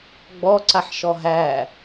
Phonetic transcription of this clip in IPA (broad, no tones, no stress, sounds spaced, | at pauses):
ɡ͡b ɔ ǀ a ħ ʃ ɔ ɦ æ